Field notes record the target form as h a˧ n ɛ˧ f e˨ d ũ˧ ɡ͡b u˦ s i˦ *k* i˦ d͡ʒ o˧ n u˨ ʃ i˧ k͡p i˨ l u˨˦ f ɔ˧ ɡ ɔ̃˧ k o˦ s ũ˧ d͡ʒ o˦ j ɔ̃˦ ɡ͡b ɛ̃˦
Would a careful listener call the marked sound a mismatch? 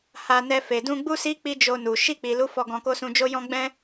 yes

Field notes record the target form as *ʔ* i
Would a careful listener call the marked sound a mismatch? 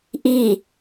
no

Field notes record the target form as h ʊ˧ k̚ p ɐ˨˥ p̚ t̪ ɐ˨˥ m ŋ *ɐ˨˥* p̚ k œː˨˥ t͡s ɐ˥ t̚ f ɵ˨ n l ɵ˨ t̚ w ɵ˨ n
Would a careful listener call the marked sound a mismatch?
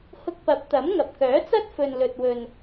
yes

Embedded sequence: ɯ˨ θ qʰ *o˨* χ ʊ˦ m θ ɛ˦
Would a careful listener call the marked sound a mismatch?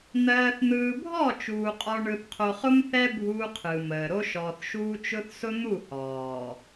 no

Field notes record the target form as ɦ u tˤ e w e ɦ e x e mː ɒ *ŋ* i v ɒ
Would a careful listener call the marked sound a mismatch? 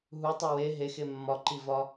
yes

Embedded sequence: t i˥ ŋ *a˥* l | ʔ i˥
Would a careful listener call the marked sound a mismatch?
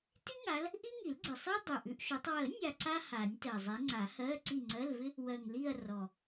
yes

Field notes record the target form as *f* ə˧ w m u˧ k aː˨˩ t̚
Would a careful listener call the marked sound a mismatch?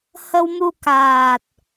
yes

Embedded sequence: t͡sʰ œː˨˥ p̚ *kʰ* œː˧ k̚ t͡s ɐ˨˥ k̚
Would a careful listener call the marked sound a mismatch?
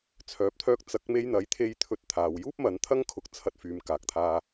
yes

